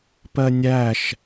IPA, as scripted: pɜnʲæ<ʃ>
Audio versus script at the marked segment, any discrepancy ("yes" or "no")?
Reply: no